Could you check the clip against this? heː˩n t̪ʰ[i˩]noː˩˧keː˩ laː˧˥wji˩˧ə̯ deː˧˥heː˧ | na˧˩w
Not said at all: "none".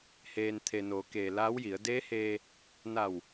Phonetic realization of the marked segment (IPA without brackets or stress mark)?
e˩